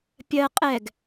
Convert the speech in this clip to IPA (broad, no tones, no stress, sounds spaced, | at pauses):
pʲ ɜ qʼ ɛ ɡ